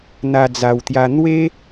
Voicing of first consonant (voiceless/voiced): voiced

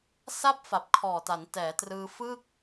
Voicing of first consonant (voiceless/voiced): voiceless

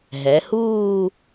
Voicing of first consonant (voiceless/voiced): voiced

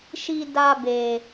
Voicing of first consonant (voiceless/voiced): voiceless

